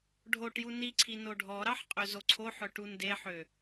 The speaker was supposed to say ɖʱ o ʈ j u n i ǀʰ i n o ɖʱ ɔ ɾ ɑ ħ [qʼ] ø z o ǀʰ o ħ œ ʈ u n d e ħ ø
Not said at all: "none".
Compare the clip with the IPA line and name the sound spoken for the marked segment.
qʼ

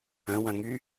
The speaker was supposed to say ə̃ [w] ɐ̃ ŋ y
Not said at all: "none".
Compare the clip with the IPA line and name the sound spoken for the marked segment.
w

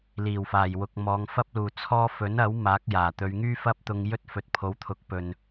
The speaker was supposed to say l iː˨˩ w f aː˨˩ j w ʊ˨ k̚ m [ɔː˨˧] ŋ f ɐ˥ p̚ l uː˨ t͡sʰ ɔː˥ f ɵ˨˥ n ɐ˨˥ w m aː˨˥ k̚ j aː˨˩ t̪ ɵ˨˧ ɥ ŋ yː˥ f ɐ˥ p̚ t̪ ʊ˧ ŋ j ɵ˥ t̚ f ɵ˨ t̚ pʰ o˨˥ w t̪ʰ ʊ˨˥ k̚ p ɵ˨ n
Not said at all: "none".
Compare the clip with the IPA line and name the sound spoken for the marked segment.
ɔː˨˧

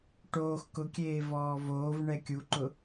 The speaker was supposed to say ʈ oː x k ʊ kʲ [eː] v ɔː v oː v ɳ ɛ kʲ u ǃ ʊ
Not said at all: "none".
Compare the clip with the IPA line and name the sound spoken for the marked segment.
eː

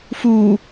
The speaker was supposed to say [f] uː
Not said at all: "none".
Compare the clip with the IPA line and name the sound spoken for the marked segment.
f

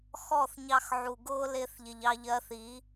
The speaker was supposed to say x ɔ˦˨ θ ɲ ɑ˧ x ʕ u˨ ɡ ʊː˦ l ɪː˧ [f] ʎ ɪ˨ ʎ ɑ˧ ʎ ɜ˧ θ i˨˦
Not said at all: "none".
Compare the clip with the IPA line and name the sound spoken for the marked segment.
θ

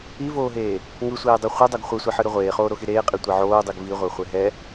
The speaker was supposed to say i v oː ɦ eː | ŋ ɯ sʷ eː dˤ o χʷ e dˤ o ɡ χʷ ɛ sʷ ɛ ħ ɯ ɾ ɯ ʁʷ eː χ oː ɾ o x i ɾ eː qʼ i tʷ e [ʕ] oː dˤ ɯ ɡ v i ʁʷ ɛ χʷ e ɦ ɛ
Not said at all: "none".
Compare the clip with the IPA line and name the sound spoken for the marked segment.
ʕ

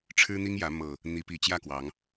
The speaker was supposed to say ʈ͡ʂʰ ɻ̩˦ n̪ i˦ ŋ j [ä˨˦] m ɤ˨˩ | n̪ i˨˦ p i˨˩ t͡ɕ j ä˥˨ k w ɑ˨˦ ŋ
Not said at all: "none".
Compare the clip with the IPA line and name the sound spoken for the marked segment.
ä˨˦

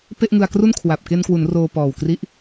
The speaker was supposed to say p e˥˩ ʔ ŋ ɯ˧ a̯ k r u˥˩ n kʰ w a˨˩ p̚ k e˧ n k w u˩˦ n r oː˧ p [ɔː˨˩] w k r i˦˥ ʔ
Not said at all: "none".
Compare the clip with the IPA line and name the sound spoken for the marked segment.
ɔː˨˩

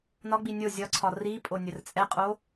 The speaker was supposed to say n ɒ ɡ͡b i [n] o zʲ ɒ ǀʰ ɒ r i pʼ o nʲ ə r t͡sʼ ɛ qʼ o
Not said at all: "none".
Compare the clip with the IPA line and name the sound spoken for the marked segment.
nʲ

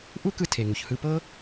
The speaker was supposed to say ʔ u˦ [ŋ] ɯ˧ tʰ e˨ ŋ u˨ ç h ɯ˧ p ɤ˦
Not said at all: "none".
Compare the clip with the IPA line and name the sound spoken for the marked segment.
k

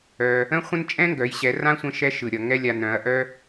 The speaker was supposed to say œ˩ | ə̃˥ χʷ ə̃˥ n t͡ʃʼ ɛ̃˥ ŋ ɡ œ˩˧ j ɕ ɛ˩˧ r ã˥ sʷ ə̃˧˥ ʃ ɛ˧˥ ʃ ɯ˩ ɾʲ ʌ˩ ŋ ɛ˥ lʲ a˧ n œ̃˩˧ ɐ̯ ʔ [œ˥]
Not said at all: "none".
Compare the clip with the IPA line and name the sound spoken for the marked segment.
œ˥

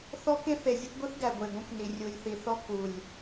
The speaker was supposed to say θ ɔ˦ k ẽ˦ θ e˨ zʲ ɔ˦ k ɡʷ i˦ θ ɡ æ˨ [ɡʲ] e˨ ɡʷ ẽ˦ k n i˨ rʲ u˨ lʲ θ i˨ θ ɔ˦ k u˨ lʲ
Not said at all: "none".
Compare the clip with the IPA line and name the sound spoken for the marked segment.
ɡʷ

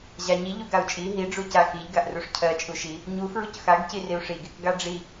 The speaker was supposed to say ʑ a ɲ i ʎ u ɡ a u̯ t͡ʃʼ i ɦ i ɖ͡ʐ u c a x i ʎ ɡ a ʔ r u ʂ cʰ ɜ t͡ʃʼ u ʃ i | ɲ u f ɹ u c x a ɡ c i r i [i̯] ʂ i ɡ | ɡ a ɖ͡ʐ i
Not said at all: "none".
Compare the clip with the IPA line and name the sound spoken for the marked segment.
u̯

